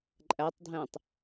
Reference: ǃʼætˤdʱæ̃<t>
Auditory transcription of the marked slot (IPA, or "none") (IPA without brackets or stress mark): tˤ